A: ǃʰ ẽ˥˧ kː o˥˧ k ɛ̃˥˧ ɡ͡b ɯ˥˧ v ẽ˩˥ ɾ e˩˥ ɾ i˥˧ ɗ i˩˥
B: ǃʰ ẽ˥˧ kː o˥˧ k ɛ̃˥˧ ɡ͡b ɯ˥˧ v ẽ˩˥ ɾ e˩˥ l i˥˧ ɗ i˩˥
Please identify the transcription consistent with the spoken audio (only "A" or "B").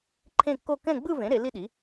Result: B